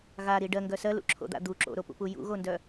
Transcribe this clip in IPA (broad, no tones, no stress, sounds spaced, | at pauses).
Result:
ɣ a ɾ i ɖ ɜ ŋ ɡ œ s ɜ l ṵ ǁʰ o̰ d̪ a̰ d̪ u ǁ o̰ ɾ o p ṵ p u j ṵ ɣ o n d œ